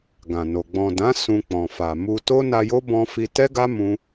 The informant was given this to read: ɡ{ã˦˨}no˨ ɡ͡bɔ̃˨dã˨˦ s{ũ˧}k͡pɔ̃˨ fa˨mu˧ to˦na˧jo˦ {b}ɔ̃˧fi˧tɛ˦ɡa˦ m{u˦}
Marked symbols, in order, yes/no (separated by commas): no, yes, yes, no